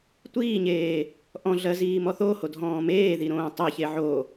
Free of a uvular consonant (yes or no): yes